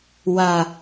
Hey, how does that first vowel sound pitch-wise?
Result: low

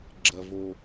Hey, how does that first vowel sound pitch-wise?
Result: low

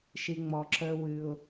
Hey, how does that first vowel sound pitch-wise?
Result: low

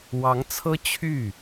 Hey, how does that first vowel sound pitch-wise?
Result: rising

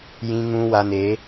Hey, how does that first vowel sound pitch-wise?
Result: high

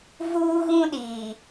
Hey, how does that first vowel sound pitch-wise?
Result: high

